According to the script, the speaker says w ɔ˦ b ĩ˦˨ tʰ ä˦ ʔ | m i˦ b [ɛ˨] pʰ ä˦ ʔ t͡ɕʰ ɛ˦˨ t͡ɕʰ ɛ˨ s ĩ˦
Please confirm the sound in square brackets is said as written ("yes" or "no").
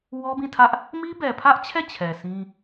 yes